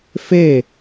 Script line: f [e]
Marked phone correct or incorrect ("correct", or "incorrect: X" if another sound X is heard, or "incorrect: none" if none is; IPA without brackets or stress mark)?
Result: correct